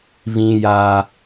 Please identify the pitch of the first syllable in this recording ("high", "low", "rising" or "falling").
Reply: high